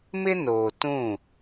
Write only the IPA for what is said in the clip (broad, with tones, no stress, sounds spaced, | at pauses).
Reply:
m ɪ˦ n oː˨ t ũ˦˨